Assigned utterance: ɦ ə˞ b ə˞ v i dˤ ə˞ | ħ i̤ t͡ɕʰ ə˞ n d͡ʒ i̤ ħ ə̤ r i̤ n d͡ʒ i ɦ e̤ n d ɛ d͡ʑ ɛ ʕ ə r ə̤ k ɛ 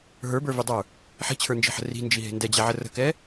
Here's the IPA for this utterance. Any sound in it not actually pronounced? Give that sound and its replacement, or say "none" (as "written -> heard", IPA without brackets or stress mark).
none